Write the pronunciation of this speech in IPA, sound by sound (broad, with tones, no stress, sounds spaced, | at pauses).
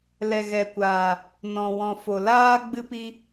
l ɛ˨ ɣ ɛ˨ kʷ aː˨ | n ɔ̃˨ w ɔ̃˨ f o˨ l aː˦ ɡ͡b ɨ˦ p i˦